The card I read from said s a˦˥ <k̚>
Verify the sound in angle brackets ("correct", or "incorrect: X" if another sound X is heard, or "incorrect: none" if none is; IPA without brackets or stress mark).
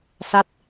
incorrect: t̚